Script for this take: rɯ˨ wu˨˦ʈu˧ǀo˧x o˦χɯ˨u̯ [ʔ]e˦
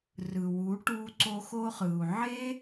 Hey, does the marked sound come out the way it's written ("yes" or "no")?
no